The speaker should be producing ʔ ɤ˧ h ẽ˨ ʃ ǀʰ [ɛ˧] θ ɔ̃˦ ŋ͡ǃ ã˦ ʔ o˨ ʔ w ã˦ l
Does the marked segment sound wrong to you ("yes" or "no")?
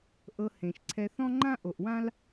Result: no